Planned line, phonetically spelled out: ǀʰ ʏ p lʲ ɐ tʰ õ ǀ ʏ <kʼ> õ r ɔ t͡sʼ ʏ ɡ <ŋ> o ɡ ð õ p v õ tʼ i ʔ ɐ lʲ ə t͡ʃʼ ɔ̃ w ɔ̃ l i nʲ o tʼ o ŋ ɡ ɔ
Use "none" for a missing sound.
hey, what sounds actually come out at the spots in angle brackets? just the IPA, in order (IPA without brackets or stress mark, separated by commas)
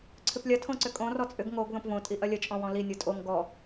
kʼ, ŋ